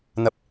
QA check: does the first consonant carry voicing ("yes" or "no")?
yes